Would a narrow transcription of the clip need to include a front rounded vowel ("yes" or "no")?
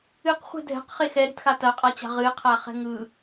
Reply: no